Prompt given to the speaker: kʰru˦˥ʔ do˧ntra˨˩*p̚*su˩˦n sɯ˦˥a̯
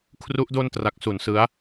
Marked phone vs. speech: incorrect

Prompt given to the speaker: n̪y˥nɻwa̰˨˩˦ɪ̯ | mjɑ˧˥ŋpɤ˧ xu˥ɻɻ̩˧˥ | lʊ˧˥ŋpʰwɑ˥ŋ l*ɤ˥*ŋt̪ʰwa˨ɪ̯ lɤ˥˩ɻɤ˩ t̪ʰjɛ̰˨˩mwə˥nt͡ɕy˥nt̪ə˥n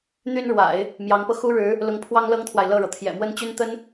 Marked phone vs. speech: correct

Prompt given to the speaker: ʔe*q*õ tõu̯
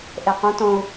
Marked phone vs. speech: correct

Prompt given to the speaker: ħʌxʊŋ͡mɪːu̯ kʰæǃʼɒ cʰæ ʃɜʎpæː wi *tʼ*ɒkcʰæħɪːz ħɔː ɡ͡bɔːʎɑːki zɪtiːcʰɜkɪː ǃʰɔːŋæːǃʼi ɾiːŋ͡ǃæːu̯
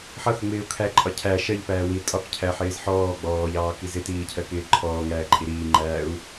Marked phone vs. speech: correct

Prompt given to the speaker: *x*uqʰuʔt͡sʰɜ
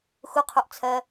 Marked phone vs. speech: correct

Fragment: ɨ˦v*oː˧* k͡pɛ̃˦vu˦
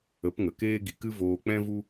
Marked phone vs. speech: correct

